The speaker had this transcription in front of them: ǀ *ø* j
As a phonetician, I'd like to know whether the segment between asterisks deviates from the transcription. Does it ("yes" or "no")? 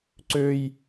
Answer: no